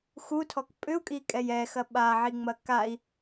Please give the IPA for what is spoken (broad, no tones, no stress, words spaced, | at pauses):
xutʰɔk pʼʏu̯kʼikʼɛj ɛxɐ ɓaʕiŋ͡mɐ kai̯